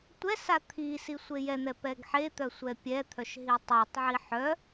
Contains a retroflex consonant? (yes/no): no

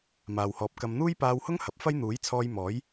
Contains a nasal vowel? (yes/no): no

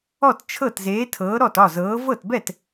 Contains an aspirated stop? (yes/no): yes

